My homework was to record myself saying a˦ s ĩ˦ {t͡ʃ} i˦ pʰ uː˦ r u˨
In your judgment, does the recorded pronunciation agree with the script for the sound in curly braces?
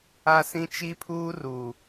yes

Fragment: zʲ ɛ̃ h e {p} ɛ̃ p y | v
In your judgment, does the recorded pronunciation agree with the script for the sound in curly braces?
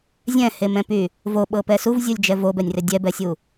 no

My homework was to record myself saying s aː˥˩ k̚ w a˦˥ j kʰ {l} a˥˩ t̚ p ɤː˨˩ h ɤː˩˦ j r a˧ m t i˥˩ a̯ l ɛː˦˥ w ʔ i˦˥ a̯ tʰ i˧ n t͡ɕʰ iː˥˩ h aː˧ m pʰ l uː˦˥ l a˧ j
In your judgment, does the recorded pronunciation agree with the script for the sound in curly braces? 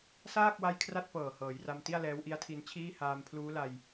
no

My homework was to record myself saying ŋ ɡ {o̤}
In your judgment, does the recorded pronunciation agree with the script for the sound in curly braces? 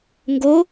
no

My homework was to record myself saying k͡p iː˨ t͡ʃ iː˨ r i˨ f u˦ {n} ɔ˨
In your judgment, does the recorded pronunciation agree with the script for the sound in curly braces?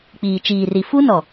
yes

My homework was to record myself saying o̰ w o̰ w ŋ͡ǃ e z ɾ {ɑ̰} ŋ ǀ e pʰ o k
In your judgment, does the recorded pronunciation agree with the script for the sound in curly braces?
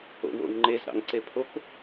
yes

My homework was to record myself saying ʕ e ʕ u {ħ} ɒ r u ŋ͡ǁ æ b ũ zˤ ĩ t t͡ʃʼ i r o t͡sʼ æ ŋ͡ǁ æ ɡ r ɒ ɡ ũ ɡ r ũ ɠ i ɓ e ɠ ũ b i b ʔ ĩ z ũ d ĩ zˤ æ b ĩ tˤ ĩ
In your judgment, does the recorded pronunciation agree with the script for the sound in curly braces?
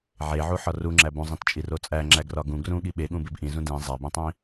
yes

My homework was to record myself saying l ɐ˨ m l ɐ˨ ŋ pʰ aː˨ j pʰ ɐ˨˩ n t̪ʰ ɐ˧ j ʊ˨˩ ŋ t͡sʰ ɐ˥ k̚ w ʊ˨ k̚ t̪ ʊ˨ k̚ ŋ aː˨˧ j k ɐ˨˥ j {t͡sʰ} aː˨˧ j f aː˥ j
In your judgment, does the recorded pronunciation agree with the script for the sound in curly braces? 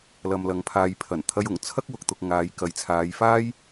yes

